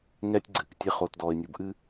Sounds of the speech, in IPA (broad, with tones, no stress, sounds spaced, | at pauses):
ŋ ɛː˦ tʲ ɡ͡ǀ ɨː˨ k tʲ e˦ χ oː˨ t d ɔː˨ ɪ̯ nʲ u˨ b ʔ ɨ˦